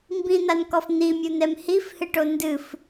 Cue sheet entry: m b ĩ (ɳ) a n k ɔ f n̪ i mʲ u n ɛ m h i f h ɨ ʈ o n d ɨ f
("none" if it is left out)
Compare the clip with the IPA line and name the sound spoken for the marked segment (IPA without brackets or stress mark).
n̪